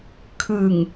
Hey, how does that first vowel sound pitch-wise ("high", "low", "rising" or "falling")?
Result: low